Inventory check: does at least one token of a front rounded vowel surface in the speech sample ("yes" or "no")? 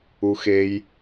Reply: no